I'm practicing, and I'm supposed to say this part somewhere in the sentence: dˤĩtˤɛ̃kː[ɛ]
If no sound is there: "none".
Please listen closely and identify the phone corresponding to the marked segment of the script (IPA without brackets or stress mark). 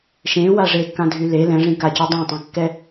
ɛ